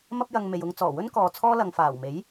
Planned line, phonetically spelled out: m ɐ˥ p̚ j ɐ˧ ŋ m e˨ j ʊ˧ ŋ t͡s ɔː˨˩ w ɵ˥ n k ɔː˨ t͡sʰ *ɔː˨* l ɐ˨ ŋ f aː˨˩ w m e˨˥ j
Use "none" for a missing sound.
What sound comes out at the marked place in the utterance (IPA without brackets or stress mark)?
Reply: ɔː˥